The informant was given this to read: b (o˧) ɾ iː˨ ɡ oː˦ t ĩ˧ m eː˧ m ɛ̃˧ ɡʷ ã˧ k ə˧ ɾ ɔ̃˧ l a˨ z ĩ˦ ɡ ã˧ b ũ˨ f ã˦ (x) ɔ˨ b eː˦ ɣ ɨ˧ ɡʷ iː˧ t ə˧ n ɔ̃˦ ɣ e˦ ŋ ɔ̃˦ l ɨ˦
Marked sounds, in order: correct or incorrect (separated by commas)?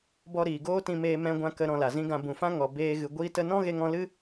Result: incorrect, incorrect